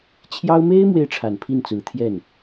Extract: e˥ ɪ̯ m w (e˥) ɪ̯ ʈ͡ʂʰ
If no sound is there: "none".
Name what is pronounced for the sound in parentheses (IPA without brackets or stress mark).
e˥